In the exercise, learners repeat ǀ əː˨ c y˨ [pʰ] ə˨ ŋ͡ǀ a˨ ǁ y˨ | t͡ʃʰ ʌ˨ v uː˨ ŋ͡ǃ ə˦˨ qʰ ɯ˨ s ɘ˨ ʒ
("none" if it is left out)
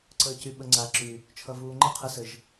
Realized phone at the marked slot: ɓ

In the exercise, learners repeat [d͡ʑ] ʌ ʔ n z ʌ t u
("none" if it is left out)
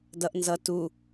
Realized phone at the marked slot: d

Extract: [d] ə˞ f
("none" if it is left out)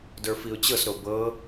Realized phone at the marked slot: d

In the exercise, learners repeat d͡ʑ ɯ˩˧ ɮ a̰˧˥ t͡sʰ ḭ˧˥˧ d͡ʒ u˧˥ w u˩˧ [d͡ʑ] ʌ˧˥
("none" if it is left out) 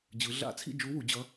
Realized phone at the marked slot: d͡ʑ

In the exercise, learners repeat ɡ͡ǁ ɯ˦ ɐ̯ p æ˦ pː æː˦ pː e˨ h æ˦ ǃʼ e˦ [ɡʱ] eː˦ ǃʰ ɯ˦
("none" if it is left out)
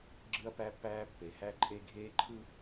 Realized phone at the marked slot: ɡʱ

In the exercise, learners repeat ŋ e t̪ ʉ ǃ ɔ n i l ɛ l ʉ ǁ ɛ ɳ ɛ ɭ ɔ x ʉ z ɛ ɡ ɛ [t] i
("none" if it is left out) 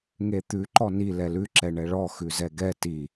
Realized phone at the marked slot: t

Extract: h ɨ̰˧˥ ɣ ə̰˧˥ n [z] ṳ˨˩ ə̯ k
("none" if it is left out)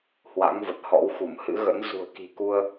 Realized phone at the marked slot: z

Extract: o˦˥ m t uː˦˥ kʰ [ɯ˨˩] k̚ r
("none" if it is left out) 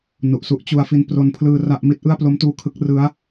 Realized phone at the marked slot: ɯ˦˥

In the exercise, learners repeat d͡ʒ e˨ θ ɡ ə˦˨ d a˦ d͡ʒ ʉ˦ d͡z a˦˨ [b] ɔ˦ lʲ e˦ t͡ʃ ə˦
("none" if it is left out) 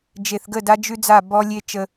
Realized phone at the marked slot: b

